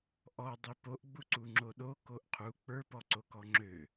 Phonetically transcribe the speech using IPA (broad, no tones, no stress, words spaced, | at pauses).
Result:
ʔɔdˤi poʔɡ͡buǀu ŋ͡ǁoɗo koʔqʰu k͡pə˞pɔǀo kɔŋ͡ǁø